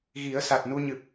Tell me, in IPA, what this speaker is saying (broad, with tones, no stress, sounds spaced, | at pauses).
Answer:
ɣ i˨˩˦ ə̯ s a˨˩ t̚ n u˧ ɲ ɨ˨˩ p̚